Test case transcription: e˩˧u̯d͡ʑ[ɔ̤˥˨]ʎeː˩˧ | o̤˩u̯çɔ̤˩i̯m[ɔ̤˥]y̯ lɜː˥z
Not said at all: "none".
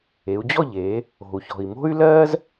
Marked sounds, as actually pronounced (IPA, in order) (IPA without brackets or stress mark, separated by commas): ɔ˥˨, o̤˥